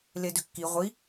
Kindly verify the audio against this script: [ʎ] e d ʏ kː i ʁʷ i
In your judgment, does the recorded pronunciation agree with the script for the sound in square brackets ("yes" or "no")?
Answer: no